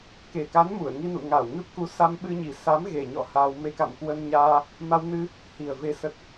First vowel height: mid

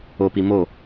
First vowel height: mid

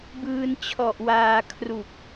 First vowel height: high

